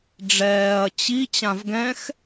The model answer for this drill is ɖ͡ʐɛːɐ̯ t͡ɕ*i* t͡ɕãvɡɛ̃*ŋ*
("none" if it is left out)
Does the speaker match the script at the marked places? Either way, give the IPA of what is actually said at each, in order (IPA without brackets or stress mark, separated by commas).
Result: i, x